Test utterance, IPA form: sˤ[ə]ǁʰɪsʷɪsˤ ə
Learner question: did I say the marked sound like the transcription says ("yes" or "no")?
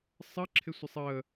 yes